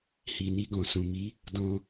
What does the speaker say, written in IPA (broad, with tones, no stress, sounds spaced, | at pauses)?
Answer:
h i˨ n i˧ ɡ ɔ̃˨ s ũ˨ m i˨˦ | d ɔ̃˧